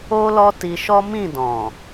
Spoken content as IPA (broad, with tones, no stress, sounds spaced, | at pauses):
o˦ l ɔ˦ t i˧ ʃ ɔ˦ m ĩ˦˨ d ɔ̃˨